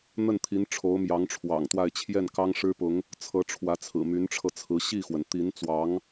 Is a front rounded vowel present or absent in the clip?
present